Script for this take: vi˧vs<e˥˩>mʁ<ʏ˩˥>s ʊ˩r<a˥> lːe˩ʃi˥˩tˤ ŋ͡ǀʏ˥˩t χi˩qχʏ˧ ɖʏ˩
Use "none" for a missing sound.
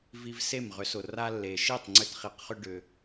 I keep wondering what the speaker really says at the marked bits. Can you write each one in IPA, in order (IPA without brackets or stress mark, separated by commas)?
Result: e˥˩, ʏ˩˥, a˥